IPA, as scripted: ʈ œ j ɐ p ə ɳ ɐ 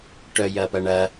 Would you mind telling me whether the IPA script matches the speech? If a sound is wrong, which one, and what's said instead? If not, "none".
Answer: ə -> ɐ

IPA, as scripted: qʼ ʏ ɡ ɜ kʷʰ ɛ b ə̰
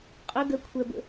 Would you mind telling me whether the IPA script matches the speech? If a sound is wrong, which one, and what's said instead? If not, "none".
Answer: none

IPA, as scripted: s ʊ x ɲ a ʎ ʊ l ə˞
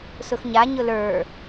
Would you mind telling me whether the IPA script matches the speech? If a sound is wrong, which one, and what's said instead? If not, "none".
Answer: ʎ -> ɲ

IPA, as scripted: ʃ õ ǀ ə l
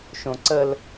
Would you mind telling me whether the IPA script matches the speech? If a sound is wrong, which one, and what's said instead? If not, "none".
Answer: none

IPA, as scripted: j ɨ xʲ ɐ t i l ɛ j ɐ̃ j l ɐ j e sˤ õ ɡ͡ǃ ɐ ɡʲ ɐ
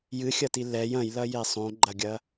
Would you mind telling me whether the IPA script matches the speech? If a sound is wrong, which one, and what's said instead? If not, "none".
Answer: none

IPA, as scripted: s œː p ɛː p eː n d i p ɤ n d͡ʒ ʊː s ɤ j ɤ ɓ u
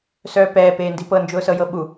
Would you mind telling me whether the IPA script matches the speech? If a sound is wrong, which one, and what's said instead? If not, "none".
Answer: none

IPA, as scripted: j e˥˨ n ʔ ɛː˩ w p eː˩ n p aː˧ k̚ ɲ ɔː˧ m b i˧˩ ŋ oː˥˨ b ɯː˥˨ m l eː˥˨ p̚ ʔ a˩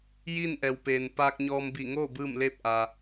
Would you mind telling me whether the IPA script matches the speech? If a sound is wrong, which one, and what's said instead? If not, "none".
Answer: e˥˨ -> i˥˨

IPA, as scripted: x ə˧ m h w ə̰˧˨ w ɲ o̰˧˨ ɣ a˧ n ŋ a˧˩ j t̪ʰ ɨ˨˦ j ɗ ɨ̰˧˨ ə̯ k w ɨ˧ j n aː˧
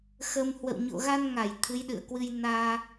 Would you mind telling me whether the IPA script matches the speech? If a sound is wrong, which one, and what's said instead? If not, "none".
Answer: none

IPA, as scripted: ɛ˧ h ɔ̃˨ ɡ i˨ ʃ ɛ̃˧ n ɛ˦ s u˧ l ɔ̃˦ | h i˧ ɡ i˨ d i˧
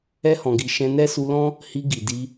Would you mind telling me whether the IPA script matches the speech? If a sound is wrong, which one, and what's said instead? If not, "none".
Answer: none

